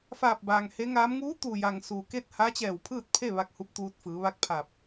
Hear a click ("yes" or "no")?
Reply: no